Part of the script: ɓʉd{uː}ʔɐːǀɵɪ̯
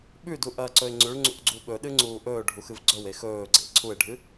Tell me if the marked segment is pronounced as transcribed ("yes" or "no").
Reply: no